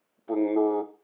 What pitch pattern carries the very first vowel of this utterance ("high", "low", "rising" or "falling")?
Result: high